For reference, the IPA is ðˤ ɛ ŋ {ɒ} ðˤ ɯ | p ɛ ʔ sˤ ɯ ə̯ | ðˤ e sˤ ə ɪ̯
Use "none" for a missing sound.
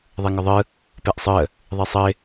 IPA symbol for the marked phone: ɒ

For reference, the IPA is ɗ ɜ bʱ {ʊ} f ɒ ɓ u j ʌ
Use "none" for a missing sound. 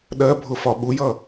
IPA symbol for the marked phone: ʊ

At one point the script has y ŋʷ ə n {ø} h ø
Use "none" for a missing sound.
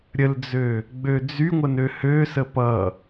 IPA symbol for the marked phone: ø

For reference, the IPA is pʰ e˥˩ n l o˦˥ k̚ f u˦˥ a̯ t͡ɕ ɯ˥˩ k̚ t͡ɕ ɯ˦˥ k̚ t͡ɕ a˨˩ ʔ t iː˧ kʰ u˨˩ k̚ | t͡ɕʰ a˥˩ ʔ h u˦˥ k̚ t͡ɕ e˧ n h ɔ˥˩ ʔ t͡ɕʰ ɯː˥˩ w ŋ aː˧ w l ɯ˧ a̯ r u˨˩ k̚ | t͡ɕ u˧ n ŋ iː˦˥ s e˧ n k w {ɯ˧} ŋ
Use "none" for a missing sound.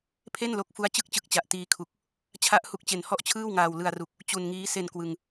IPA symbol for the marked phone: ɯ˧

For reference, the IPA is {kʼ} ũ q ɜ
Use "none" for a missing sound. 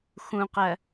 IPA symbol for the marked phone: x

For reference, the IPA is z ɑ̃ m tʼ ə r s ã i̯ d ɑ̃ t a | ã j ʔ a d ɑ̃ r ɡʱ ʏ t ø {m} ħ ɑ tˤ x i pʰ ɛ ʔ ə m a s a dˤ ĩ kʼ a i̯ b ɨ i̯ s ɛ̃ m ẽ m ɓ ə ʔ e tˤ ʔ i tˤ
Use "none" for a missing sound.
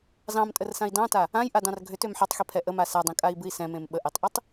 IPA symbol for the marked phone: m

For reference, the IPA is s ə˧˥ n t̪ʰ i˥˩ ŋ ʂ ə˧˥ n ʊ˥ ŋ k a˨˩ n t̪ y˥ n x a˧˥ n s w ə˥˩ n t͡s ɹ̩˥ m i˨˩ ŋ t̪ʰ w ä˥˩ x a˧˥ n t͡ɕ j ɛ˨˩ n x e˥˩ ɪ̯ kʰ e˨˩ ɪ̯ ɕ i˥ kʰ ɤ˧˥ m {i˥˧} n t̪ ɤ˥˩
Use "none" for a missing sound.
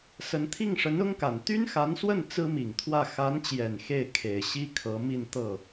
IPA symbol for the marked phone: i˥˧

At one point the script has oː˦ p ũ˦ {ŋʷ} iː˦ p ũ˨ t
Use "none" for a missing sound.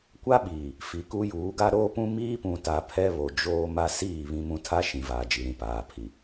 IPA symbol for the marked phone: m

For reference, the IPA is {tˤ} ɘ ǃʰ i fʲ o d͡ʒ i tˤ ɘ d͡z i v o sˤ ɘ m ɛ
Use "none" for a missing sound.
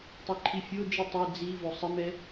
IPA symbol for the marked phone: tˤ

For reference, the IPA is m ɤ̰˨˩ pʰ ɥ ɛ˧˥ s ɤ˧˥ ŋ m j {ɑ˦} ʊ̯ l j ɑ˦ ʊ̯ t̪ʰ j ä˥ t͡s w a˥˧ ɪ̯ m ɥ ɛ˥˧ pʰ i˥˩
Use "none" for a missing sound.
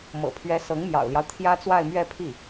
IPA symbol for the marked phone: ɑ̰˨˩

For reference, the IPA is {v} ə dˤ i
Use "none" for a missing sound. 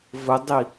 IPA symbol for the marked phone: v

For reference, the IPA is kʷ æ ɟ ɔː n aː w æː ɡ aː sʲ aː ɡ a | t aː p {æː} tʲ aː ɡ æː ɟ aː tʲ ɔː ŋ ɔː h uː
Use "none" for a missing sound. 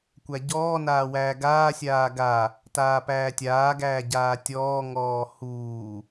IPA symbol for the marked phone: æː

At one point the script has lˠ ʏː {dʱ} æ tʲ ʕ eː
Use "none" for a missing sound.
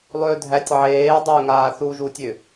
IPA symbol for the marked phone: dʱ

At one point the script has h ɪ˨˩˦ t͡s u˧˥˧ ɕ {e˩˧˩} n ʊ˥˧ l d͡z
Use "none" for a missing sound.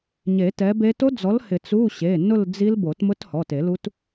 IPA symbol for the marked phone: e˩˧˩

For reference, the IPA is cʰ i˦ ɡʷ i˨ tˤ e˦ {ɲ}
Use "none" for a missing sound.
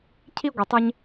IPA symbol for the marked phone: ɲ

